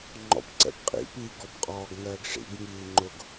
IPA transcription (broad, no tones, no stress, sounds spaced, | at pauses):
ŋ͡ǃ ɔ̰ p ǀ ɛ̰ p qʼ ḭ p i ɡ ɔ p qʼ ɒː ɡ ŋ ɜː ɡ ʂ ḭ ɡ ŋ iː ŋ͡ǃ ʊ ɡ